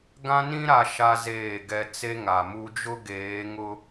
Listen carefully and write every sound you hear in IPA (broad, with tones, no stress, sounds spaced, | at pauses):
ɡ ã˦ n ĩ˦ ɾ a˦ ʃ a˦ z eː˦˨ ɡ ɛ˦ t͡s e˦ ŋ a˨ m u˦ d͡ʒ ʊ˦ ɡ eː˨˦ ŋ ʊ˦